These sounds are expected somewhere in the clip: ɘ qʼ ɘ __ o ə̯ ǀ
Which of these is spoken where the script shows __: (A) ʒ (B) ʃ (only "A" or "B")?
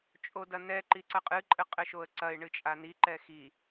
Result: B